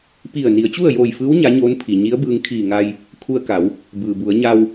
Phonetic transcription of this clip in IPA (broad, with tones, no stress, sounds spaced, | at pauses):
p i˧˩ ə̯ n i˩˧ ə̯ t͡ɕ u˥˨ ə̯ j oː˧˩ j f ɯː˧˥ w ɲ a˧˥ ɲ oː˧˥ n pʰ i˩ ɲ i˧˥ ə̯ b ɯː˧ ŋ kʰ iː˧˩ ŋ a˧ j | kʰ u˧ ə̯ k a˩˧ w | b ɯː˩ b u˩˧ ə̯ ɲ a˧ w